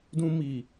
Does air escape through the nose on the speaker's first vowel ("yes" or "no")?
yes